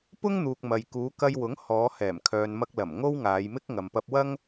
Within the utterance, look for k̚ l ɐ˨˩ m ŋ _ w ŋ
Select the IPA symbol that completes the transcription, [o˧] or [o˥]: o˥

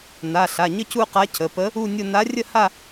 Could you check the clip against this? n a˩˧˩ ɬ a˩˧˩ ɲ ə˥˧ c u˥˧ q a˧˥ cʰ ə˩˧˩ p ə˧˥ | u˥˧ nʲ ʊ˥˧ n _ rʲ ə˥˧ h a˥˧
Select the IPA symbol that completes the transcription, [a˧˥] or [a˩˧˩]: a˧˥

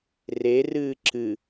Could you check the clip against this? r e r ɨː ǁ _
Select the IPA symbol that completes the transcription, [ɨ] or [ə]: ɨ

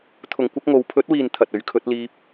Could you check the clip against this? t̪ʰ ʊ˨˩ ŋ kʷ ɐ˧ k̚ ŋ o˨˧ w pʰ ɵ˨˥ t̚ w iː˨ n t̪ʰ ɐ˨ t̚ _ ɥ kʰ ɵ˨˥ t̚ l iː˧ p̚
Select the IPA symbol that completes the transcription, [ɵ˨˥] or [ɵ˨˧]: ɵ˨˥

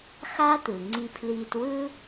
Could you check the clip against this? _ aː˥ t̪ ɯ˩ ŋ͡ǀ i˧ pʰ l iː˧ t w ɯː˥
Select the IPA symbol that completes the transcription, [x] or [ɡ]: x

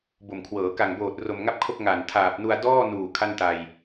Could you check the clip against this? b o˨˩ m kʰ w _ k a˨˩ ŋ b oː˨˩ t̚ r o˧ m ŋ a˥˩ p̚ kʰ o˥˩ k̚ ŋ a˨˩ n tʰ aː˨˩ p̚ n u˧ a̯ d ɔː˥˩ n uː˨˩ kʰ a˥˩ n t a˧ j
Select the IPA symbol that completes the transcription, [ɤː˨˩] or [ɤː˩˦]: ɤː˩˦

